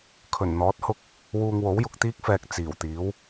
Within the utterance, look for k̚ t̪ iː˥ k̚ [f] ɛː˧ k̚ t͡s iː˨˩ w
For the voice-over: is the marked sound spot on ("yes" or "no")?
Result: yes